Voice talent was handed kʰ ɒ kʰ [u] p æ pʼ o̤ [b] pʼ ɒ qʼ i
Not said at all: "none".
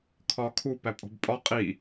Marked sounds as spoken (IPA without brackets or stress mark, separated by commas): u, b